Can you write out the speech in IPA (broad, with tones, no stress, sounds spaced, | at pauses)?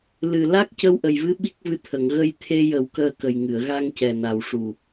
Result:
l ɨ˨˩ l a˦˥ k̚ c ə˧ w ʔ ə˨˩ j v ɨ˧˥ ɓ i˦˥ k̚ v ɨ˧ t̪ʰ ə˨˩˨ ŋ ɣ ə˧ j t̪ʰ e˧ j ə˨˩˦ w k əː˧ k ə˨˩ j ŋ ɨ˨˩˨ ə̯ ɣ a˧ ŋ c ɛ˨˩ n a˨˩ w ʂ u˨˩